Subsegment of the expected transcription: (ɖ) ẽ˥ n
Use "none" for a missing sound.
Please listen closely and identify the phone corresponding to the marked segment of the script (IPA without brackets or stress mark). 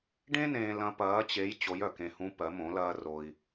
ɖ